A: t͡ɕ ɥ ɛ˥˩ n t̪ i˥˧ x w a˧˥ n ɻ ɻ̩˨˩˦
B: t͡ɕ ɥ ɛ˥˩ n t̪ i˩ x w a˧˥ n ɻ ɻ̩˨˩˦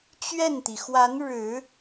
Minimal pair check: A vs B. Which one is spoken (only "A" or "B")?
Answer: B